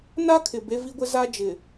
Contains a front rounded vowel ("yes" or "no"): no